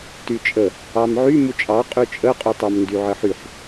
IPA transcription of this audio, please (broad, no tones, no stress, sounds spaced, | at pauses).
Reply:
t y t͡ʃʼ ə | ɑ m ʕ y m u t͡ʃʼ ɑ qʼ y t͡ʃʼ ə qʼ y tˤ ɑ m n d y ʕ ə ħ y ħ